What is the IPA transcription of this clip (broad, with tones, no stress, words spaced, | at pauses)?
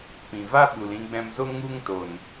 pĩ˨va˦ ɓu˨lĩ˧ɡ͡bɛ̃˧mzo˦ ŋu˧ŋto˨n